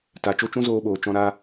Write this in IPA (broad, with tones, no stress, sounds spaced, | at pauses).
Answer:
t a˨ t͡ʃ o˦ t͡ʃ ũ˦ z oː˧ ɓ oː˨ t͡ʃ ɔ̃˧ ɾ aː˦